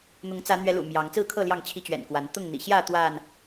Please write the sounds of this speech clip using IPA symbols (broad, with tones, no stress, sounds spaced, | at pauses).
n̪ ʊ˨˦ ŋ t͡s ä˨˦ n̪ ɥ ɛ˨˦ l ṵ˨˩ m j ɑ˨˦ ŋ t͡s ɹ̩˥˨ kʰ ɤ˥˨ l j ɑ˥˨ ŋ t͡ɕʰ i˦ t͡ɕ ɥ ɛ̰˨˩ n k w a˨˦ n t̪ ʊ˥˨ ŋ n̪ ḭ˨˩ ɕ j ä˥˨ t̪ w a˥˨ n